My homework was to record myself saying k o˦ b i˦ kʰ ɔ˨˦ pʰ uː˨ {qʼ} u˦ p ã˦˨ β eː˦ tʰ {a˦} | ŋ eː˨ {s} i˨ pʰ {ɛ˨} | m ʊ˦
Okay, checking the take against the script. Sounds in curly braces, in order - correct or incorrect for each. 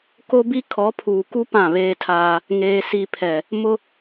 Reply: incorrect: k, incorrect: aː˦, correct, correct

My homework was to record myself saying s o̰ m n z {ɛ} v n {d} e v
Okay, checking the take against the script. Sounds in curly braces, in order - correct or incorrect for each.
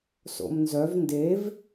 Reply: incorrect: œ, correct

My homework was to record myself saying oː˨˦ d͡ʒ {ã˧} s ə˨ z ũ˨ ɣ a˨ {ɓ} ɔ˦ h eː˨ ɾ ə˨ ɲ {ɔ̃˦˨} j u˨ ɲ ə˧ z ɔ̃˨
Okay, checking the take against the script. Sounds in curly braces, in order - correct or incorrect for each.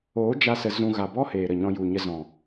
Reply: incorrect: a˧, incorrect: b, incorrect: ɔ̃˧

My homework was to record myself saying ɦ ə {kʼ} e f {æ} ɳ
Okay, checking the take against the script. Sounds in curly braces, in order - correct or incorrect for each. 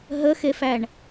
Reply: incorrect: x, correct

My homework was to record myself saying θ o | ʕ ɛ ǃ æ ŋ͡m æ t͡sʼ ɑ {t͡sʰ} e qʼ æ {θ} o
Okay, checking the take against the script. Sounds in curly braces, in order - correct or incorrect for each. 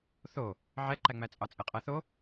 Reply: incorrect: t͡sʼ, correct

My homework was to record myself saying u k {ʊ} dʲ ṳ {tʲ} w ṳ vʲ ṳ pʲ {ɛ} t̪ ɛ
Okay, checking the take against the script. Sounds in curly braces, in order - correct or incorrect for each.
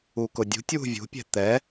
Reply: correct, correct, incorrect: ɛ̤

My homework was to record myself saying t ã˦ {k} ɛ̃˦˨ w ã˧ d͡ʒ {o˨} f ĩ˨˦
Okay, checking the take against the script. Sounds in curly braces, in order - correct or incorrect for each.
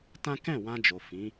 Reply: correct, correct

